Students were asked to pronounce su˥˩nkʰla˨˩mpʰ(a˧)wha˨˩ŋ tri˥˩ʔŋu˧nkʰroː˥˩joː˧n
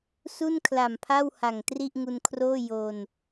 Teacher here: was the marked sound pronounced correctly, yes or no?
no